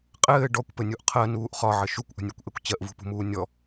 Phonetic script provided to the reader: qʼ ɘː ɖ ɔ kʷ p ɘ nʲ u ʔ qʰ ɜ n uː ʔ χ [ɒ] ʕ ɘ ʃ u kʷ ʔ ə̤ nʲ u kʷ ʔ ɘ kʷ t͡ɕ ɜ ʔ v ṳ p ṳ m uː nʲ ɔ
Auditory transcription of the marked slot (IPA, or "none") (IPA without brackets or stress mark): ɒ